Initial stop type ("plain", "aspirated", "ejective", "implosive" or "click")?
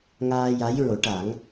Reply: plain